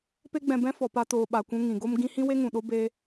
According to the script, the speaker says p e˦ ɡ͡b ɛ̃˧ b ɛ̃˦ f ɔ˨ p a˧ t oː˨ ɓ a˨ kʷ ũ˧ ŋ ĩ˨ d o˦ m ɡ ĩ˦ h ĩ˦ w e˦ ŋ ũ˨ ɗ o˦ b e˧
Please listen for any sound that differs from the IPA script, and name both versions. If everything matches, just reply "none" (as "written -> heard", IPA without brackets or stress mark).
d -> ɡ